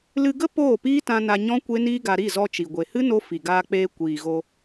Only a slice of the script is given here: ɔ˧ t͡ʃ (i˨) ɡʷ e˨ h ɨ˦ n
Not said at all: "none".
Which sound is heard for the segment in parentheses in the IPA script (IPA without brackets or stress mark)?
i˨